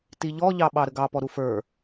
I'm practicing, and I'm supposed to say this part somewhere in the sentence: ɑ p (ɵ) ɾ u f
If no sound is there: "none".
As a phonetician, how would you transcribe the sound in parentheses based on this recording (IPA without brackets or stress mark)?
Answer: ɔ